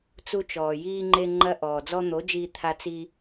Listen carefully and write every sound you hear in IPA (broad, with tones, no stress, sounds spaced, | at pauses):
t͡s u˧ t͡ʃ ɔː˨ j iː˧ ŋ͡ǃ e˧ ŋ͡ǃ ɐ˧ ʔ ɔː˨ d͡z ɔ˧ n̪ o˨˦ d͡ʒ iː˧ t̪ʰ a˧ t͡s i˧